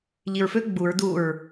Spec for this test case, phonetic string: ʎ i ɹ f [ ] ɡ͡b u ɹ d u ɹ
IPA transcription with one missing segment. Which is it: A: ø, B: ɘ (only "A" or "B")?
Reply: A